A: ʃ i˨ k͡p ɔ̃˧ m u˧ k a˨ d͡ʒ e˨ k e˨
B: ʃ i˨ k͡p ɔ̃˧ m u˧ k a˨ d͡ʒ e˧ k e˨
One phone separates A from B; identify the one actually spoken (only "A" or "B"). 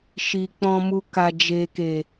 A